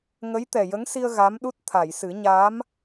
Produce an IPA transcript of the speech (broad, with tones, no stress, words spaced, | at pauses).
ŋə˧˥jt̪ɛ˨˩ jə˧˥ŋsi˧ə̯ ɣa˧˥mɗu˦˥t̚ t̪ʰa˨˩˨jsɨ˨˩˦ ɲaː˧˥m